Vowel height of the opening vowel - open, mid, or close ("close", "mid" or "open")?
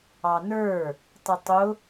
open